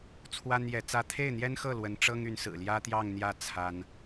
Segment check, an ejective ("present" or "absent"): absent